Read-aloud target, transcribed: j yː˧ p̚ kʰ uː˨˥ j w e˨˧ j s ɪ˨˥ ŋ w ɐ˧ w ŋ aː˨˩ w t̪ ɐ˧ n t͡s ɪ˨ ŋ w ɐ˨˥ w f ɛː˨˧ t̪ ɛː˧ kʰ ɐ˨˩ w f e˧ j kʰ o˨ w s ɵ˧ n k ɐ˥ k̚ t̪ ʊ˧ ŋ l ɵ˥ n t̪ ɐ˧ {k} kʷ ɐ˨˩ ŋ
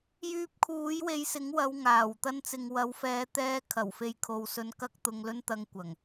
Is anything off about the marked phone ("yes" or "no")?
yes